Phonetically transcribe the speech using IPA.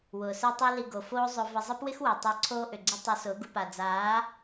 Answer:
wʊː˨sɪː˦tˤi˦li˧ ɡo˨foː˦ zˤʊ˦ və˧zˤə˦pwɪ˦xwɛ˨ tˤəː˧ǀʰoː˦ʔʏ˨ɡ͡ǀɪ˦ tˤəː˧sʊː˨˦ɡu˧pa˨ d͡zaː˨˦

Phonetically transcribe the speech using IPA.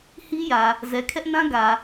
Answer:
hi˦jä˨ | zɛ˨kʰɛ˦ʔnã˦ ɡä˨

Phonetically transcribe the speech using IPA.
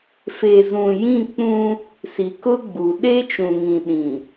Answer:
fe˨zũ˨ jĩ˦˨ k͡pũ˦ | si˨kʊ˦ ɡ͡bu˨ ɗe˦t͡ʃũ˨ŋĩ˨ ɗĩ˨

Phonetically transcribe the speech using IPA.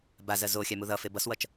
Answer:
bazɜ zoxʲa muðʌfe bʌswʌt͡ʃ

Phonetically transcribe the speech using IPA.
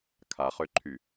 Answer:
kʰaχøǃʰy

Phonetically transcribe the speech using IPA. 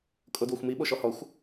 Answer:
kʼodwoxʷmi ɓoʃɔhɔxʷ

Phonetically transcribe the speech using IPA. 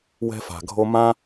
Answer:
wɛ̤˧fa̤˨ɡʱo˧ mã˦

